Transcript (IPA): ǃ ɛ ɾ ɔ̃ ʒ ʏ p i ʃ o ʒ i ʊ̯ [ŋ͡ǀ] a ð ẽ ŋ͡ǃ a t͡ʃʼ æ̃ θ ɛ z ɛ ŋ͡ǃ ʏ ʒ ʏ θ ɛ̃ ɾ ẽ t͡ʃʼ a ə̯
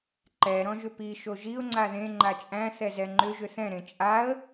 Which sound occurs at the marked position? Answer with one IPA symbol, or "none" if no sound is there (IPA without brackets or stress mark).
ŋ͡ǀ